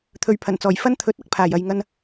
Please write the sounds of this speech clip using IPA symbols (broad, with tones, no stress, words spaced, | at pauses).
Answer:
t̪ʰɵ˨ɥpʰɐ˨˩nt͡sɔː˨˩j fɐ˥nt̪ʰɵ˨˥t̚ ɐ˥k̚pʰaː˨˩j ɐ˨j ŋɐ˧n